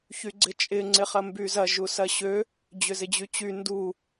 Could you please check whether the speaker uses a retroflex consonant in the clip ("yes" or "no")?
no